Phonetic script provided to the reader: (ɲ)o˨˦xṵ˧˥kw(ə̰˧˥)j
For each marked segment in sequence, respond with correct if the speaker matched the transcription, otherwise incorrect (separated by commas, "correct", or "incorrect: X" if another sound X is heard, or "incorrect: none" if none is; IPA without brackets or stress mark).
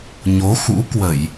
correct, incorrect: ə˧˩˨